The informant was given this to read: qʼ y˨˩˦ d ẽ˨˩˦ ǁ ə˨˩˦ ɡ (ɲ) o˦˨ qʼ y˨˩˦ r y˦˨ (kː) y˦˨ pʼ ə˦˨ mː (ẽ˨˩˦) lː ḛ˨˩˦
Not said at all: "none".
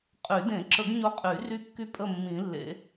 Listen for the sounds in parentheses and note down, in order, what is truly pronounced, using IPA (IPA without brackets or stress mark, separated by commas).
ɲ, kː, ĩ˨˩˦